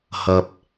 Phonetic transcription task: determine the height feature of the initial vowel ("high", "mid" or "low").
low